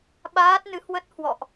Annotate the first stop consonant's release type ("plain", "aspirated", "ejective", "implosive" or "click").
implosive